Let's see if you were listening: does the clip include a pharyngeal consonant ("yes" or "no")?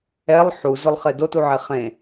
yes